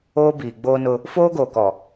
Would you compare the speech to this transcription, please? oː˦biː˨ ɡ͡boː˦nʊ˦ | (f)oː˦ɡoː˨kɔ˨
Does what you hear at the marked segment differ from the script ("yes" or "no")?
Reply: no